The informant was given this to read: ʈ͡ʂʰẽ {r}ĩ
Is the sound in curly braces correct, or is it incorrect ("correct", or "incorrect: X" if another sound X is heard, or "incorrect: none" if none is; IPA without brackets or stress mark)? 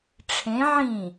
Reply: incorrect: ʕ